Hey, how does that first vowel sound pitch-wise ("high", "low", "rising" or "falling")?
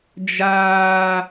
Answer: high